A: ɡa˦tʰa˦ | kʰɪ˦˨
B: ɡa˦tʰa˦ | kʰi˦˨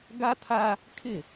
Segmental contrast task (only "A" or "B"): A